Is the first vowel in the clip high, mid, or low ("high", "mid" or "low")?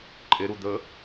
mid